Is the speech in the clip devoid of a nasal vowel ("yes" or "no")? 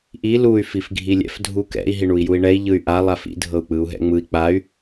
yes